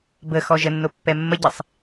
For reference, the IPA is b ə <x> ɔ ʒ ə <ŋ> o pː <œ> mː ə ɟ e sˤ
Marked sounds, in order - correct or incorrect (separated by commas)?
correct, incorrect, incorrect